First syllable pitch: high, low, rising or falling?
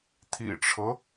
low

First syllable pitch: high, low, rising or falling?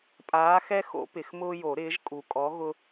rising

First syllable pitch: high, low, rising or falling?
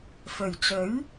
low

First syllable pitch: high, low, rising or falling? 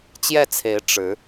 falling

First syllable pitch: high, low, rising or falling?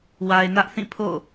low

